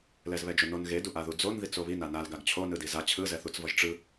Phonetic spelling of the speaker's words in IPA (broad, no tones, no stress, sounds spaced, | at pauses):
l ɛ z β ɛ d͡ʒ o n o n ɣ e d u ʔ a ð u d͡z o n ð i t͡s o β i n a n a l ɡ a ɡ t͡ɕʰ o n ɯ d i z a t͡ɕʰ ɯ z ɛ θ u t͡s v ʌ ʒ ʈ͡ʂ ɯ